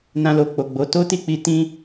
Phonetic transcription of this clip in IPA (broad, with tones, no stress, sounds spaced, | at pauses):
n ã˧ l o˨ k͡p o˨ ɡ͡b o˨˦ t o˦ t i˦˨ k͡p i˧ t ĩ˦